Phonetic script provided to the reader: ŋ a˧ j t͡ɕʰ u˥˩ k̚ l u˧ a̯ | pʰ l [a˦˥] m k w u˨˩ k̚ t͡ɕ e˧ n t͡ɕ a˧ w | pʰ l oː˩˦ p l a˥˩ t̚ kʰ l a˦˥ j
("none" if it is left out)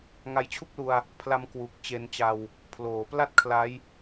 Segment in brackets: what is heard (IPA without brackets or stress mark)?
a˦˥